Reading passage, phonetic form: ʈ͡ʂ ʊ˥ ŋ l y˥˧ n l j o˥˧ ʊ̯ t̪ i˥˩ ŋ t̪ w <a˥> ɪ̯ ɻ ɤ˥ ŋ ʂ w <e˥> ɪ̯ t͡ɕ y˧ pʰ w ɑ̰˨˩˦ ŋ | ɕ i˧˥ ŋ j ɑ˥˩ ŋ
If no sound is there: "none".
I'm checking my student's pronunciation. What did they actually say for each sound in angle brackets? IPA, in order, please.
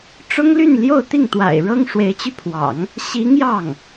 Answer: a̰˨˩, e˧˥

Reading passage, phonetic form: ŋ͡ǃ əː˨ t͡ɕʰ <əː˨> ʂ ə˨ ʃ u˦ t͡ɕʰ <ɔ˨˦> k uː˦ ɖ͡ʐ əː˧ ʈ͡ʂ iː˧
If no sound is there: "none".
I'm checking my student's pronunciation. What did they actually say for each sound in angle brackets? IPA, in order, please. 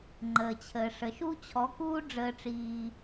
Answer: əː˨, ɔ˨˦

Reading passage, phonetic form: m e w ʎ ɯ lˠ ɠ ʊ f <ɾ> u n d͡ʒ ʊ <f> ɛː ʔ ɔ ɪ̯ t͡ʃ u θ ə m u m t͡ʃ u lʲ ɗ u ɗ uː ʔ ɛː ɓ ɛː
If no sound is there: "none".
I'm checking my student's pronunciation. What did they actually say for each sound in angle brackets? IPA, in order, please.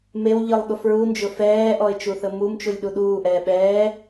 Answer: ɹ, f

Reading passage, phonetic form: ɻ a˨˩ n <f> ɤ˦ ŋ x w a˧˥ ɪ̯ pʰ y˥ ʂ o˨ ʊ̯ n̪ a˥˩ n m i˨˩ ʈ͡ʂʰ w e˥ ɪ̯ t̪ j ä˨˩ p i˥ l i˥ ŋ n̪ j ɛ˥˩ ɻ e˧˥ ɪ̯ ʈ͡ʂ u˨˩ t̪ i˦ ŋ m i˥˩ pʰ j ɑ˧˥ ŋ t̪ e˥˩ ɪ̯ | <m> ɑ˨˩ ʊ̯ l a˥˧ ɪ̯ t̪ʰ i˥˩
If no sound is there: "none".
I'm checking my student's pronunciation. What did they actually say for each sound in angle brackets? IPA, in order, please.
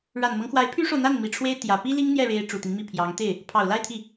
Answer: m, pʰ

